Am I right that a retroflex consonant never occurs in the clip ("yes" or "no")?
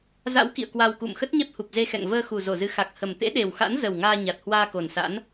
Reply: yes